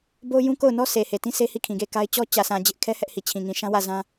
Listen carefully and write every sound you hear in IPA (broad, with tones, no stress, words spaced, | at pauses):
bo˦jũ˦ko˦˨ʊ̯nɔ˦ sʰe˨he˨tĩ˦sʰe˦ hi˦˨kʰĩ˨ɡe˦˨ ka˦ɪ̯ t͡ɕɔ˦ t͡ɕä˨sʰã˨ d͡ʑɪ˦ʔkʰɛ˦ hɛ˦ʔhi˨ t͡ɕʰĩ˨ŋĩ˨ʃã˦wä˦˨ zã˦